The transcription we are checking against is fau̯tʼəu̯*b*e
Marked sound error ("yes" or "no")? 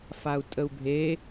yes